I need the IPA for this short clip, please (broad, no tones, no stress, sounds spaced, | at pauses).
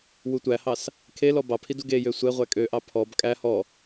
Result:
w u tʷ æ h ɑ s | kʰ e l ɔ b ɑ pʰ i d u ɡ e j ø sʷ ɛ ʁʷ æ kʼ ø ʔ ɑ pʰ ɔ b kʼ æ h ɔ